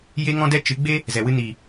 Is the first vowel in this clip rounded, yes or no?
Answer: no